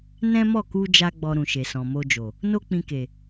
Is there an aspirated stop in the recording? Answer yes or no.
no